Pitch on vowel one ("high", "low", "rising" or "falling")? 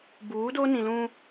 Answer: rising